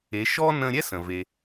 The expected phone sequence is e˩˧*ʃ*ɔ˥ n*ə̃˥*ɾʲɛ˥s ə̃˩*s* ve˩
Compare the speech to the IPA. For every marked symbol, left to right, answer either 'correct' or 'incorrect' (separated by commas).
correct, incorrect, incorrect